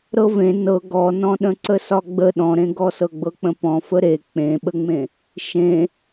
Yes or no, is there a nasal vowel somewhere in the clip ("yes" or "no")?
yes